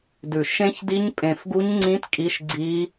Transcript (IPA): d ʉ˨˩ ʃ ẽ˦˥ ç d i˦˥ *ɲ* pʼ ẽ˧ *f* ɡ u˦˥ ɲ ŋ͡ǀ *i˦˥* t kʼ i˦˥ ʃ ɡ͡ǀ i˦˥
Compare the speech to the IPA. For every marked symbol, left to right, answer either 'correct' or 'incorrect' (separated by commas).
correct, correct, incorrect